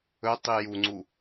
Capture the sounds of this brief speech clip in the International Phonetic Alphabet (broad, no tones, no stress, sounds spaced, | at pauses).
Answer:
ɵ tˤ i j u ŋ͡ǀ u